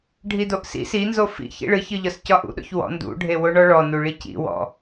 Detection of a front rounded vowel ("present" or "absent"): absent